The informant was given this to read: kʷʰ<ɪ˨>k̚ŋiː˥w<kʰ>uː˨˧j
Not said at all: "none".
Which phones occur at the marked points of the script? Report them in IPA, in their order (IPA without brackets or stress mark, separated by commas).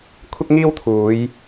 ɪ˥, t̪ʰ